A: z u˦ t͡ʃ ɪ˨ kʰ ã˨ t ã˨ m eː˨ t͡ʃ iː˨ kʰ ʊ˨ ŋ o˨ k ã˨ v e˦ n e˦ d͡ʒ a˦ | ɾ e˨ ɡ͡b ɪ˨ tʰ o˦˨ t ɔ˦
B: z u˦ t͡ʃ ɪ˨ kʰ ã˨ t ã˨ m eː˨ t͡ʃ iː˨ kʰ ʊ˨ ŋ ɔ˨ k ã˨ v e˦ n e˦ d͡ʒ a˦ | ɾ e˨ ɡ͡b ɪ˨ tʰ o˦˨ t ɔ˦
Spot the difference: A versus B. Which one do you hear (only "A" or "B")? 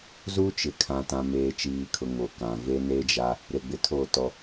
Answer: A